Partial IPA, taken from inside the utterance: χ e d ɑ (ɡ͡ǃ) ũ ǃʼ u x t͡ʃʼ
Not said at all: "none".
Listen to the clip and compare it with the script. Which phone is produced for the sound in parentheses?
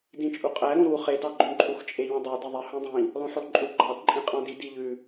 ɡ͡ǃ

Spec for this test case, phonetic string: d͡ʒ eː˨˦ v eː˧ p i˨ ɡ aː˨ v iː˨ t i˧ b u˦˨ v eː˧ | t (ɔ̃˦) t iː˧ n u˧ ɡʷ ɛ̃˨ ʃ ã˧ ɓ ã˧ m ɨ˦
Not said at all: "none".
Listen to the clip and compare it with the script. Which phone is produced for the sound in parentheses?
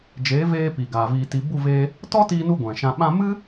ɔ˦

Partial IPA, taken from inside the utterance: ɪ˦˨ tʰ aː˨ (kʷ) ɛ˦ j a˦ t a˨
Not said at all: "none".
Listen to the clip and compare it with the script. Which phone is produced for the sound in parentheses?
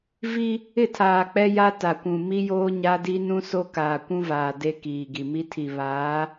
k͡p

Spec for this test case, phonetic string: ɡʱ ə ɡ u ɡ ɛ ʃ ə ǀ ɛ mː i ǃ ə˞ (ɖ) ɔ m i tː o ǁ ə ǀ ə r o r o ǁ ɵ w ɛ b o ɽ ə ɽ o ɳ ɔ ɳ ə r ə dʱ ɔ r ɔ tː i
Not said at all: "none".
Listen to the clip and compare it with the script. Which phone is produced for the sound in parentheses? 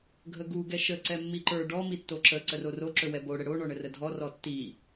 ɖ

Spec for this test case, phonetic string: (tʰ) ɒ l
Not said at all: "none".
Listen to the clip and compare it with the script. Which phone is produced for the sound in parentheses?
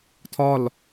tʰ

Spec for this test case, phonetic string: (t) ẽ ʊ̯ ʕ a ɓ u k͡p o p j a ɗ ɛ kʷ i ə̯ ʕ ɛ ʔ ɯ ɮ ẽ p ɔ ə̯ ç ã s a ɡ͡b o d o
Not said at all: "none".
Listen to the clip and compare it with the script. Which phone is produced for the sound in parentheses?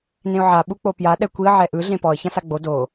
n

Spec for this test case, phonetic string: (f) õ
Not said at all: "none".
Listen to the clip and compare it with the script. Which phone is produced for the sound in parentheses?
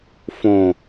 f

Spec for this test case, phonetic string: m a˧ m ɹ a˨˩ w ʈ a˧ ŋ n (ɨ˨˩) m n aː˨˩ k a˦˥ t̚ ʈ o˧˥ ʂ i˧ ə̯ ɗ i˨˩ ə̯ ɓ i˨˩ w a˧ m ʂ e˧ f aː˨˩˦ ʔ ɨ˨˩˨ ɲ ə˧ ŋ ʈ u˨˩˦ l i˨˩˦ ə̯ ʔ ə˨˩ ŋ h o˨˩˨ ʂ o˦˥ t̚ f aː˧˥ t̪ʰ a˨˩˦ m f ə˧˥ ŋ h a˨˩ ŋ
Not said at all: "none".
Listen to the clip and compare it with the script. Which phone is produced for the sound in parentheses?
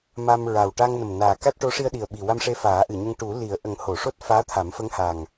ə˨˩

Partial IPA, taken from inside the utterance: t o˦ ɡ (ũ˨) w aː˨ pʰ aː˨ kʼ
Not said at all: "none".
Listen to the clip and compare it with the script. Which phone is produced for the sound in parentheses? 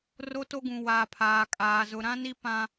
ũ˨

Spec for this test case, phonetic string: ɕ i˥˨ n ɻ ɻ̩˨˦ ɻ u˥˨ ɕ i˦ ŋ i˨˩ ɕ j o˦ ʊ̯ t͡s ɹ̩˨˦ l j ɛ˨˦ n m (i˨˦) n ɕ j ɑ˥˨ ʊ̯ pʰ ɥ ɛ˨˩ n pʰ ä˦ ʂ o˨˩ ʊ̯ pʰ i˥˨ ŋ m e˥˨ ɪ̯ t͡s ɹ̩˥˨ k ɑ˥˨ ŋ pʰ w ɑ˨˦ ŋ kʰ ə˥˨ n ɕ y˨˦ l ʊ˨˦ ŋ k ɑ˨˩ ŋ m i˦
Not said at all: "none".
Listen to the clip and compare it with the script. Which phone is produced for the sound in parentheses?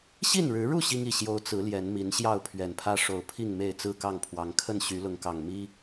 i˨˦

